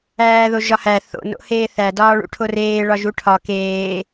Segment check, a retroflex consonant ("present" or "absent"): present